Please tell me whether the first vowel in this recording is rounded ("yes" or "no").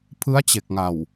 no